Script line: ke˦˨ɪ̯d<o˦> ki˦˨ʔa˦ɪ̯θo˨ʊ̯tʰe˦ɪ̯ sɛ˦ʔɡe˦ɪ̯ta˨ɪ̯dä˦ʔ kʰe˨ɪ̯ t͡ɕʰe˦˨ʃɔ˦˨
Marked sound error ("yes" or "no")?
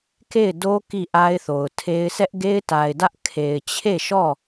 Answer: no